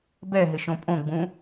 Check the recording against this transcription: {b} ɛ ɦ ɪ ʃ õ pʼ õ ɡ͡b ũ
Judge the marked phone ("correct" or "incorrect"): correct